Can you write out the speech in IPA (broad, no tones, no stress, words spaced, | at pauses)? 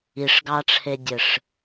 iʂɡɑʈ͡ʂʰedʲɘʂ